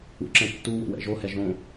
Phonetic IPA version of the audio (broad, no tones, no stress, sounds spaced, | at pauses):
ṵ ǁ ɛ̃ tː u w o̰ w ɛ̰ ʒ o h ɛ ʒ õ